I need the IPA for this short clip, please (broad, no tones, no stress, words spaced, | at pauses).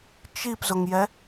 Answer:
t͡ʃipzʊŋjɛ